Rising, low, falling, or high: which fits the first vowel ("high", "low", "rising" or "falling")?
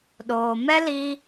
low